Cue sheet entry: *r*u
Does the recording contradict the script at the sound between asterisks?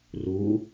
no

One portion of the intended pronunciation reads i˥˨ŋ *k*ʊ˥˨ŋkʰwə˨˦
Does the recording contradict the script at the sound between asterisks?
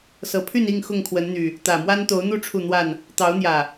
yes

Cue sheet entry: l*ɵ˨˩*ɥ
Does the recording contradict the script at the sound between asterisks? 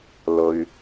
yes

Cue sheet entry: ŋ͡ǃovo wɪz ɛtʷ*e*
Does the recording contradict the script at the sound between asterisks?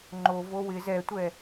yes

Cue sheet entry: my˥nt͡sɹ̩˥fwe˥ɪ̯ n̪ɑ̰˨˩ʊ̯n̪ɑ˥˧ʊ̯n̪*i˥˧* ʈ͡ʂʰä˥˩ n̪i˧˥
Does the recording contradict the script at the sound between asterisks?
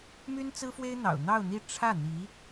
no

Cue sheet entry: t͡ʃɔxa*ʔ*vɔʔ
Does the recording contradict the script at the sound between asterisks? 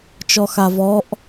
yes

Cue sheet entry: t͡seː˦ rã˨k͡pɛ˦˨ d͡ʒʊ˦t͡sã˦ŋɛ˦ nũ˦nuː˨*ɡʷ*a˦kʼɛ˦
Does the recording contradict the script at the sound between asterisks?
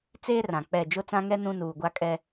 no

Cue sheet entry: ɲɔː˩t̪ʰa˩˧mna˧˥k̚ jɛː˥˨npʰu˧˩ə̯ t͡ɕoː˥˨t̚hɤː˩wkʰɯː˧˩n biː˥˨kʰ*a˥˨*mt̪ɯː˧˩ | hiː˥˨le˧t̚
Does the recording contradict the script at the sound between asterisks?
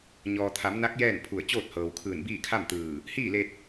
no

